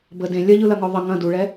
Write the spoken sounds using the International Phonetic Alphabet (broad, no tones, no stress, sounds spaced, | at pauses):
b ə d ẽ lʲ ɐ ʎ ɯ l ɐ ŋ ɔ ðˤ ə ŋ ɐ̃ d u ɭ ɛ